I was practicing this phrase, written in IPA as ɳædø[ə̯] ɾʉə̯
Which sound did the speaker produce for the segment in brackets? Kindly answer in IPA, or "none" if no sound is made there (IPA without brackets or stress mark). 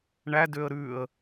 ə̯